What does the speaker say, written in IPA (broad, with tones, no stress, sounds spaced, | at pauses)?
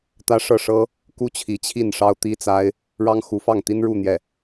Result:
t̪ ä˥ ʂ ɤ˥˩ ʂ ɤ˥ | k u˥ t͡ɕʰ i˧˥ t͡ɕʰ i˥˩ n ʂ ɑ˥ ʊ̯ t̪ i˥ t͡s a˥ ɪ̯ | ɻ ɑ˥ ŋ x u˧˥ f ɑ˥˩ ŋ t̪ i˥ n ɻ u˥˧ n̪ j ɛ˥˩